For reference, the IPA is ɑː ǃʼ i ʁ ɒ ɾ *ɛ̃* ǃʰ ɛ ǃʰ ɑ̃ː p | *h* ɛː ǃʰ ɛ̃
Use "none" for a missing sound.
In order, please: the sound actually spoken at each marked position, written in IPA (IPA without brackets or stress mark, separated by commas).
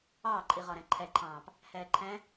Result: ɛ̃, h